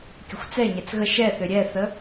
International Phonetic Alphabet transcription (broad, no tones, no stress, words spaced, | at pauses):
kʲəxʷt͡sɛɲɛt͡s ɣəʃ ɛθø ɾʲɛθə